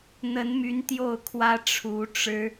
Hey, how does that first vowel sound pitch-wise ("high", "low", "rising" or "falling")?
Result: rising